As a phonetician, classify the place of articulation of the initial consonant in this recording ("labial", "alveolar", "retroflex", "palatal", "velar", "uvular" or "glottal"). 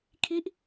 velar